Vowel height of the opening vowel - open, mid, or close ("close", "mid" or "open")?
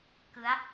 close